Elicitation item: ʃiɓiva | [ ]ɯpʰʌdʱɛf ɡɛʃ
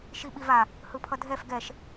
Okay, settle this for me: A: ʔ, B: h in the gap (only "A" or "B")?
B